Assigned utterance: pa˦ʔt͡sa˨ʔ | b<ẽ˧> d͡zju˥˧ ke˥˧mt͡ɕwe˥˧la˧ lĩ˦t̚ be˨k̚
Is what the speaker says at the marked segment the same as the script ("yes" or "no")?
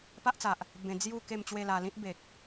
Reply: yes